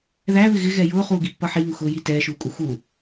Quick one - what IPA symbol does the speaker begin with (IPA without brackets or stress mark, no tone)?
ð